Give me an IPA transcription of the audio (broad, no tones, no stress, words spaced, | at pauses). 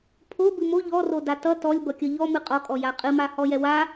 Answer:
pʰo bɨmo ʎɔroda tʌ tɔlʲ bʌkʲʌʎɔ mɨqʼɔkʼɔ jaqʼɨma hɔjɛwa